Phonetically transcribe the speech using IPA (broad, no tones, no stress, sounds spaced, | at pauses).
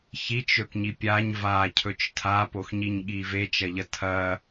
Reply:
ç i t͡ʃ ɵ k ɲ i pʲ a ɲ v a cʰ ɵ t͡ʃ tʰ a p o x ɲ i ɲ ɠ i v e t͡ʃ ɐ ʎ ɐ tʰ ɐ